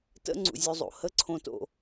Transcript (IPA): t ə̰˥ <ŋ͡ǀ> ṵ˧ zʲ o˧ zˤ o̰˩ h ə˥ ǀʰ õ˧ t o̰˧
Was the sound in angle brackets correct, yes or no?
yes